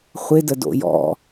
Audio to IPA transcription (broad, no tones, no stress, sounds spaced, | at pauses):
χʷ ɪ d ə d o̰ j ɔ̰